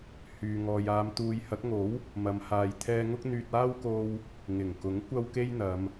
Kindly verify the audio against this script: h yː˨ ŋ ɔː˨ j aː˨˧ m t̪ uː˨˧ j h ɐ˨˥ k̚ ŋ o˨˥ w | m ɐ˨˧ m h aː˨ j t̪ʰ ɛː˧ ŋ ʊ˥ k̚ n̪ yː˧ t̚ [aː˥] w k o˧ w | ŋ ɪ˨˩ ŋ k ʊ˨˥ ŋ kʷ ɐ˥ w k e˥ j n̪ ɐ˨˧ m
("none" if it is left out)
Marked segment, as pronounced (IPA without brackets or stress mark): aː˥